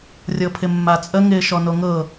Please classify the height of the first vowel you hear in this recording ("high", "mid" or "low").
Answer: mid